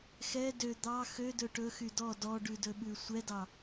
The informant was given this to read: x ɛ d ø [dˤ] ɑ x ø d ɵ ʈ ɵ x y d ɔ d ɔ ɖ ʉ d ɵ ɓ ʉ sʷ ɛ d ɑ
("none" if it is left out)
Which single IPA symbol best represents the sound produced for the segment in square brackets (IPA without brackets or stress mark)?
d̪